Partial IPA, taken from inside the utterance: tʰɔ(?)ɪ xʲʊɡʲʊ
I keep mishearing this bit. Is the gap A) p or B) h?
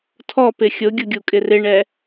A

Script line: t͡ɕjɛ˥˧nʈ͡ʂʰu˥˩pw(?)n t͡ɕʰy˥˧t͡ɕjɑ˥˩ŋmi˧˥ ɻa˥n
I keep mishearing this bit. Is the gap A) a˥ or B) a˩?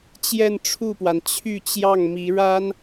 B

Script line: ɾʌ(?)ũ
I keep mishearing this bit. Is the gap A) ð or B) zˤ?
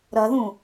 A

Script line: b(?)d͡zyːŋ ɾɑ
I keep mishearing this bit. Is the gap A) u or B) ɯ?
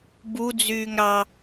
A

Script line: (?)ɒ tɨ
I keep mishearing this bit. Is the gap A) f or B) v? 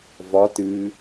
B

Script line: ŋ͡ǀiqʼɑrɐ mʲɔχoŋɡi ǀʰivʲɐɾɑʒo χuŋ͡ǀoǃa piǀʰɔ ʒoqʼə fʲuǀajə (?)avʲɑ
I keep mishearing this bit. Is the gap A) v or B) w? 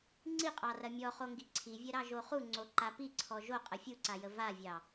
A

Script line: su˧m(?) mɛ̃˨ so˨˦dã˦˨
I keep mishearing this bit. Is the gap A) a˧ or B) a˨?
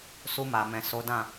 B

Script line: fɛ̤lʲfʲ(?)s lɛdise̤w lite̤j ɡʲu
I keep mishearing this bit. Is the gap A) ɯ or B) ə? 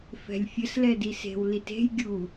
B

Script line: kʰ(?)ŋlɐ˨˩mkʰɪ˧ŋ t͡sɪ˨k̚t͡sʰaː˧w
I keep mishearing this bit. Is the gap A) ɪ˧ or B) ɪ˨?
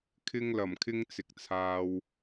A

